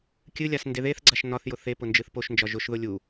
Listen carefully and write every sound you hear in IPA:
kʲ ɨ lʲ a s n d e ð e θ ɡ͡ǀ a ʃ n ɒ θ j ʊ θ e p ʊ n d͡ʒ ɨ θ p o ʃ n d͡ʒ ɒ ʒ ʊ ʃ ð ʊ lʲ u

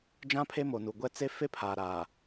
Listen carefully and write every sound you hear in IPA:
d͡ʒ ã˦ pʰ e˦ m o˨ n u˨ ɡʷ ɛ˦ t͡s e˦ f e˦ pʰ aː˨ ɾ aː˨

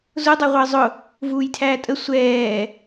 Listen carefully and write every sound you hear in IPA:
z ʊ dˤ ə˞ ʁʷ əː zˤ ʊ | v uː j tʰ æː tʼ ə sʷ ɛː

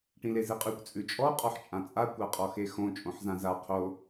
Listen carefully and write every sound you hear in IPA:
ʈ ĩ l e z e qʼ ʉ kʷ t͡sʼ ʉ t͡ʃʼ ɔ qʼ ɔ ħ t͡ʃʼ ã t͡sʼ a kʷ a qʼ ɔ x e x õ t͡ʃʼ õ ħ z ã z a qʰ o

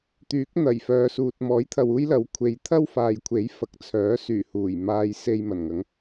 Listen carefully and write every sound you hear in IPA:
t̪ yː˨˥ k̚ n̪ ɐ˨˩ j f œː˨˧ s uː˨ t̚ m ɔː˨˥ j t̪ʰ ɐ˨ w uː˥ j l ɐ˨˥ w kʷʰ e˨ j t̪ʰ ɐ˥ w f aː˨ j kʷʰ e˨˥ j f ɐ˨ k̚ t͡sʰ œː˨˥ s yː˨˩ h uː˨˩ j m aː˧ j s e˧ j m ɐ˨˩ n ŋ ɐ˨˥ ŋ

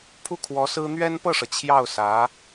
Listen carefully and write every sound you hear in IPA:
pʰ u˥˩ kʰ w ɔ˧˥ s ɹ̩˥ n̪ ɥ ɛ˥ n p ɤ˥˩ ʂ ɤ˩ t͡ɕʰ j ɑ˥˩ ʊ̯ s ä˧˥

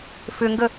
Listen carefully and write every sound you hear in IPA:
f ʏ ŋ ɡ ə

